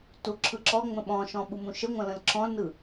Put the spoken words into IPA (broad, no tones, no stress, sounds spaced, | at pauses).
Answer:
t u ǁʰ ɯ ǁ ɔ ŋ͡m ə̃ ɓ ɔ̃ ʃ ɔ̃ ɓ u m ũ ʃ ə ŋʷ ə̃ l ə̃ l ǁʰ ɔ̃ l n ɯ